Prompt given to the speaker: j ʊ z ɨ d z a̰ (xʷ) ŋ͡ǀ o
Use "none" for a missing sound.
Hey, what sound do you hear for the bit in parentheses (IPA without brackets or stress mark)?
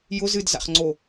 χ